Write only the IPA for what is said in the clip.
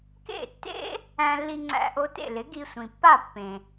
k ḛ˥˩ tː ḛ˥ | æ̃˧ lː i˧ ŋ͡ǀ æ̰˧ ʔ o˧ t ḛ˥˩ l ɪ˩˥ ɡ i˧ sʷ ĩ˩ pː a˥˩ pː ẽ˩

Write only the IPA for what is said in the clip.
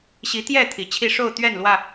ɕ i˨˦ t̪ j ɛ˥˨ t̪ʰ i˨˩ t͡ɕʰ i˥˨ ʂ o˥˨ ʊ̯ t̪ ɥ ɛ˥˨ n l w ä˥˨

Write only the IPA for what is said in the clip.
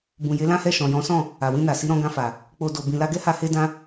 b ũ˨ j e˨˦ l ã˦ h ɛ˦˨ ʃ ɔ̃˨ j ɔ̃˨˦ s ɔ̃˦˨ | a˨ w ĩ˧ n a˨ s i˨˦ ɾ ɔ̃˧ ɡ ã˧ f a˨ | k͡p o˨ d o˨ b ĩ˨ l a˧ ɡ ɛ˦ h a˧ h e˧ d ã˧

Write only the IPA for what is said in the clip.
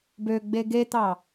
b ø ɡ͡b e ɡ e t̪ ɑ

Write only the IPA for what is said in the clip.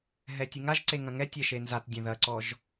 ɦ ɛ tʲ ɨ ŋ a ʒ ǀ e ŋ ɐ̃ ŋ ɛ tʲ ɛ ʃ e n z a t dʲ ɐ̃ ð ɐ ǀ ɔ ʒ

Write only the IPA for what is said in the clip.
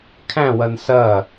kʰ æ̃ w ɐ n s ɐ

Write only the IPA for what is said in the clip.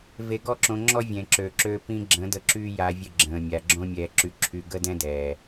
v e˧ ɡ ɔ˦ ǁ õ˧ ŋ͡ǁ ɔ˦ vʲ ɛ̃˨ ǁ øː˨ ǁ øː˧ p ĩ˧ ɡ͡ǁ ə̃ː˨˦ d ə˧ ǁ y˦ j a˧ vʲ ə˦˨ ɡ͡ǁ ə̃ː˨ mʲ a˨ ɡ͡ǁ õ˦ mʲ ɛː˧ ǁ y˧ ǁʰ y˧ ɡ ə˦ d ɛ̃˦ d ɛː˨

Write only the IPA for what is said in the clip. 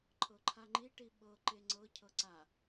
ǃʰ ɤ ǃʰ a ŋ͡ǃ i ʈ i ɓ ɤ ǃ e ŋ͡ǀ ɤ cʰ ɤ ǀ a

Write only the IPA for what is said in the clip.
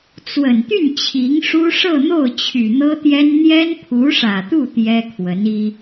t͡s w ə˨˩ n t̪ y˥˩ n t͡ɕʰ i˧˥ ŋ ʂ u˥ ʂ ɤ˥˧ n̪ o˥˩ ʊ̯ t͡ɕʰ y˨˩ n̪ ɤ˥ t̪ j ɛ˥ n n̪ j ɛ˥ n pʰ u˧˥ ʂ ä˨˩ t̪ u˥˩ t̪ j ɛ˥ kʰ w ə˧˥ n i˥

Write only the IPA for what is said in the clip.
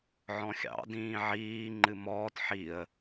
ʕ ɔ̃ xʲ ɑ̰ d ĩː ʕ iː ŋ͡ǃ ɨ m ɔː t ħ i ə̯

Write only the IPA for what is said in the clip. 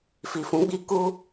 f i˨ f ũ˨˦ ɡ͡b i˦ k u˦

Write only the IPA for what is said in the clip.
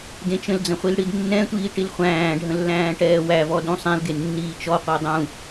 d ẽ t͡ʃ ə̃ l d͡z ə̃ χʷ i l ɽ i d nː ɛ̃ tʷ iː ʈ i l χʷ æ̃ː ɖʱ ə̃ lː æ̃ː ʈ ɛː w æ v ɔ d ũ sˤ ẽ l ɡ e nː iː t͡ʃ ɔ qʷ æ dˤ ũ

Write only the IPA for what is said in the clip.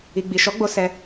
i˨ ɡ͡b i˨ ʃ ɔ˨˦ ɡ͡b o˧ s ɛ˧

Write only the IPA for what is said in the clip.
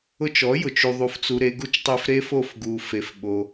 ʊ˧ t͡ʃ ɔ˨˦ j ʊ˨ t͡ʃ u˧ ðˤ u˧ f t͡s u˧ ɾ e˦ ɡ u˦ t͡ʃ tˤ i˧ f ɾ e˦ f o˦˨ f ɡ u˧ f e˧ f ɓ o˦

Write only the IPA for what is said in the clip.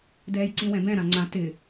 d ɛː j ǀ ĩ w ɛ̃ b ɛ̃ ɾ ã ŋ͡ǀ ã t ɪ

